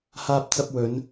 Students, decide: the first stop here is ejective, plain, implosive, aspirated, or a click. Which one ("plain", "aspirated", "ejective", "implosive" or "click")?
plain